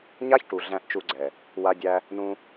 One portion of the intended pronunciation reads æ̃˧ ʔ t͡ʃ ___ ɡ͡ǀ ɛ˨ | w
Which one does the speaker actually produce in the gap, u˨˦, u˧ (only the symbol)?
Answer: u˧